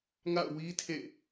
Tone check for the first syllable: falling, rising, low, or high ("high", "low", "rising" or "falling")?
falling